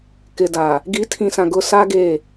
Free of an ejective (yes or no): yes